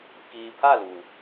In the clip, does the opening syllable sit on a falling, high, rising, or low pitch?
low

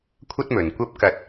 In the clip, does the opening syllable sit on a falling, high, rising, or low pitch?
high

